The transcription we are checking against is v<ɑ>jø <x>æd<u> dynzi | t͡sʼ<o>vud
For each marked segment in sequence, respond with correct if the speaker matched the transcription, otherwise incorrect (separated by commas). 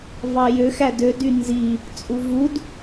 correct, correct, incorrect, incorrect